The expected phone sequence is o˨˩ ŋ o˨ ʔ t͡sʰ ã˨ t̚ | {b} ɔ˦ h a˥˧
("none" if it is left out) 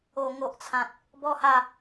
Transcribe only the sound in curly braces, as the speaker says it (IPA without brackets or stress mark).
b